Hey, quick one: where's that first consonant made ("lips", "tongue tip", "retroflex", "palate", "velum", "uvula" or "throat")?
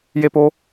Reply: palate